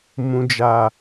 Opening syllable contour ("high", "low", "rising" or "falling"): low